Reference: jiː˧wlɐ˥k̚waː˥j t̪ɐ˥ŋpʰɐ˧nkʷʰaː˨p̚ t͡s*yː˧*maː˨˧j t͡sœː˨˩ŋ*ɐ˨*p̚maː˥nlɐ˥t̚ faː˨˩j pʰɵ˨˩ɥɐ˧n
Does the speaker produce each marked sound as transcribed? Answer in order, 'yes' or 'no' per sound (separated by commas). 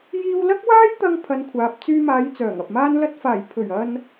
yes, yes